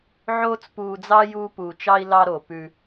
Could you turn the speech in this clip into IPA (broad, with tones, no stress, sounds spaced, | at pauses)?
ʕ oː˦ t͡s p uː˧ d͡z ɑ˦ j uː˦ p uː˧ t͡ʃ ɑ˦ i̯ l ɑ˧ ɾ o˨ p ʉ˧